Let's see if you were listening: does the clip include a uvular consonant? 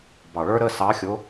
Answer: no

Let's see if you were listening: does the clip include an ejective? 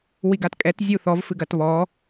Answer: yes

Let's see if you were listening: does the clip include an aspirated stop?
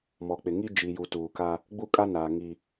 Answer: no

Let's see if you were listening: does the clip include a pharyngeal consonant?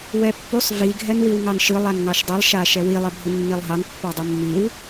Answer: no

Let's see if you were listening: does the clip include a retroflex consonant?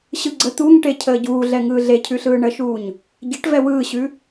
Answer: yes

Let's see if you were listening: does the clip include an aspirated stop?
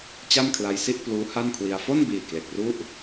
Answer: yes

